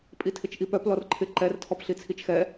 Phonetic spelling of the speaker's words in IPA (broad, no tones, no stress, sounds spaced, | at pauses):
pʼ i tʰ ɪ t͡ʃ ʔ i p œ p l ɔ r ǃʰ ɪ ǃ ɛ r tʰ ɔ p ɬ i t͡sʰ i t͡ʃ x ɛ